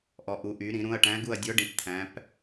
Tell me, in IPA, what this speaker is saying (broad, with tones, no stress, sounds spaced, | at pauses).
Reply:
ʔ ɔ˩˧ ʔ u˩˧ ʔ y˩˧ ɾ ĩ˩˧ ɾ ũ˩˧˩ ɐ̯ ʈ æ̃˧˥ ɡ u˦˨ ɐ̯ dʲ ɔ˧˥ ɖ ĩ˩˧˩ p t̪ʰ æ̃˩˧ p